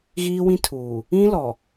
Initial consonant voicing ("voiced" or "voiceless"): voiced